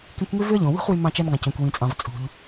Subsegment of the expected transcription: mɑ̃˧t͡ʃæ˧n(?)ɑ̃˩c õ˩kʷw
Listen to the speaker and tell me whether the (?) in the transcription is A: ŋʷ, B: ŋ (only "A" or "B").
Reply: B